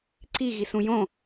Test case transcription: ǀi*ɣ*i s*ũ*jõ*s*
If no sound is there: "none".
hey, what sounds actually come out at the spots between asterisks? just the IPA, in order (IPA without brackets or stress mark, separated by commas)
ɣ, ũ, none